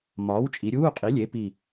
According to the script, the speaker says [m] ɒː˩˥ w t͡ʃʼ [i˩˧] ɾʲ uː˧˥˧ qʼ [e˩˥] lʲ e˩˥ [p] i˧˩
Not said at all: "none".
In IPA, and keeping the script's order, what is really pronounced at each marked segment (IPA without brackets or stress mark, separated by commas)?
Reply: m, i˩˧, i˩˥, p